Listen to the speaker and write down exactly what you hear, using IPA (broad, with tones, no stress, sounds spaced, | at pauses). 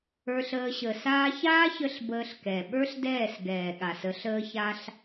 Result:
ə˞˧ ɬ əː˧ ɕ ə˨ s aː˧ ç aː˦ ç ə˧ ɬ b əː˧ ɬ k ɛ˨ ɓ ə˞˦ ɬ d ɛː˦˨ s ɡ ɛː˨ ɠ a˨ s ə˨˦ ɬ əː˧ ç a˧ ɬ